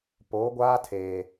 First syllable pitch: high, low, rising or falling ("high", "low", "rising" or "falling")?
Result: rising